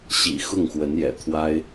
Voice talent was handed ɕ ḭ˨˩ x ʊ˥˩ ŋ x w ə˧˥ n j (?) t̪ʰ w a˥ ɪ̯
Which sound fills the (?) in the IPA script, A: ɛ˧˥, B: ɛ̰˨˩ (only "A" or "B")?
B